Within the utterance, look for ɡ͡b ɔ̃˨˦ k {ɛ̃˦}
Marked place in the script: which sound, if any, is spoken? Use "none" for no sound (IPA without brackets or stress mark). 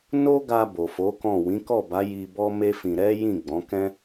ɛ̃˦